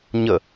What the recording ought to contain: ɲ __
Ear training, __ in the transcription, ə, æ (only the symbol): ə